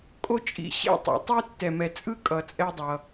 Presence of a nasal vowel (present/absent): absent